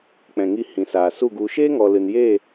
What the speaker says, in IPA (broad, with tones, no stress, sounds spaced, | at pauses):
k͡p ɛ̃˨ ŋ i˧ h ĩ˨ s aː˨ s u˦˨ ɡ u˨ ʃ eː˦ ŋ ɔ˨ l ɨ˨ n j e˦˨